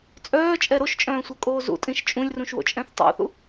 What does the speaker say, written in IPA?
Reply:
t͡sʼ œː t͡ʃʼ ɛ ɾ o ʃ t͡ʃʼ œ̃ː sʷ œ kʼ oː z ṵ tʼ ĩ ʃ t͡ʃʼ ũ lʲ r ũ ʃ w o̰ t͡ʃʼ ɛ̃ θ tˤ ṵ θ ṵ

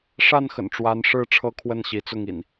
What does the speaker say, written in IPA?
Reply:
ʂ a˥˨ n x ə̰˨˩ n ʈ͡ʂ w a˨˦ n ʂ ɻ̩˦ ʈ͡ʂʰ ɤ˦ kʰ w ə˥˨ n ɕ i˨˦ t͡s ʊ˥˨ ŋ ḭ˨˩ n

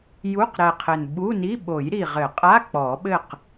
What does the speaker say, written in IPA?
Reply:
j u˧˥˧ q ɾ ɛ˨˩ qʰ ɘ˨˩ n ɓ u˧˥˧ n i˧˥˧ ɓ o˨˩˦ j ɾ i˨˩ ʁ ɘ˨˩˦ qʼ a˧˥˧ k͡p ɔ˨˩˦ ɓ ɘ˥˨ q

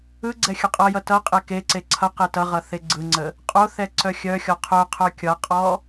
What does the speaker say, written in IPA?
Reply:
ɯ ɡ͡ǀ ɛ xʲ ə qʼ ʌ j ʌ t ʌ qʼ e k e ǀ e ǀʰ ʌ q e t ʌ ʁ ʌ θ e ɡ͡ǀ ɯ ŋ͡ǀ ə | qʼ o θ ɛ ǀ œ xʲ œ xʲ ɔ qʰ œ qʰ œ kʲ ʌ qʼ ɔ

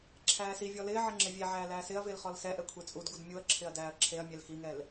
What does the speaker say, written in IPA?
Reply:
ǁʰ æː s i vʲ ɔ l ɪː ʕ ɪ ŋ͡ǁ ɪ vʲ e ʕ æː l æː s ɪ ɐ̯ v ɪː l χ ɔ l s ɛ ʔ ɛ kʷʰ e t͡sʼ u d ɡ u d mʲ u ɐ̯ ǁʰ ɪ ɐ̯ d æː ɐ̯ ǁʰ e ɐ̯ mʲ ɛ l x i ŋ ɛ l

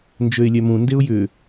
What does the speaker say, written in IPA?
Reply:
n d͡ʒ ø ɪ̯ lʲ œ m ũ n d e ʊ̯ j ʏ

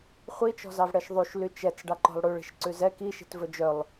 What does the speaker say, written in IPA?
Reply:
χʷ i t͡ʃ ɔ̤ z ɑ v ɽ ɛ ʃ ðˤ y ʃ l y t͡ʃ ɛ t͡s ɖ ɑ ǃ ɔ̤ lˠ ɽ ʉ ɭ i̤ ʃ ǀ ʉ z ɛ k i ʃ i̤ t v ɵ d͡ʒ œ lˠ

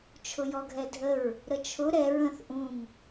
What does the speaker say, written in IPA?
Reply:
t͡ʃʰ ʊ j ɔ ɡʱ ɛ dʱ ə ɹ | ɾ ə t͡ʃʰ ʊ ɾ ɛ ɹ ə̃ θ ʔ ũ ŋ

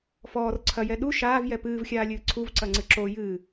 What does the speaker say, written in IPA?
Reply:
f ɔː r ǀʰ ɐ j ɛ ɗ u ʃ aː v j ɛ p ɨː v xʲ aː lʲ ɨː ǀʰ u v ǀ ɐ ŋ͡ǀ ɨ ǁ o j ɨː

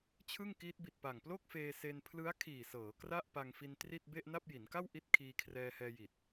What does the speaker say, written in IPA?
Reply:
t͡ɕʰ ɯ˥˩ ŋ k iː˦˥ t̚ b i˨˩ t̚ p a˨˩ ŋ p l o˥˩ k̚ f eː˧ s e˧ n pʰ l ɯ˦˥ a̯ kʰ iː˨˩ s ɤː˩˦ k r a˥˩ ʔ p a˧ ŋ f i˧ n t r i˥˩ t̚ b e˥˩ ʔ n a˥˩ p̚ j i˩˦ n k a˥˩ w ʔ i˥˩ t̚ kʰ iː˧ kʰ r ɛː˧ h ɛː˧ j i˨˩ t̚

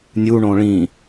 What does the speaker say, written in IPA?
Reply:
nʲ u ɳ õ ɭ ĩ

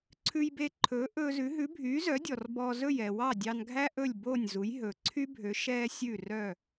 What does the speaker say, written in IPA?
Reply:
ǀʰ ʉ˧ j b e˧ ǃʰ ɵː˩˥ ʔ ɵː˧ z ʉ˩˥ ɦ ʉ˩˥ bʱ yː˩˥ z œ˩˥ dʲ ɔ˩ r b ɔ˧ z ɵ˥˩ j ɛ˩ w ɑ˥˩ dʲ ɑ˧ n ɡʱ æ˥ ʔ ɵ˥˩ lʲ b oː˥˩ nʲ z u˩˥ j ɦ ɵː˩ ǀʰ y˥ bʱ ø˩˥ ʃ ɛː˥ sʲ ʉ˥˩ r œ˥˩

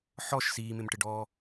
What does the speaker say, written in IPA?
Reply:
ħ ɔ ʃ s iː m ɪ m ʈ ɪ ɖ ɔː

